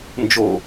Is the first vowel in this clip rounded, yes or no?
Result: yes